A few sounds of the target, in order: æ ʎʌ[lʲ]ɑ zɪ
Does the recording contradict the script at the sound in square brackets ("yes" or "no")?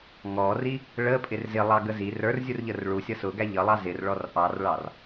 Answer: yes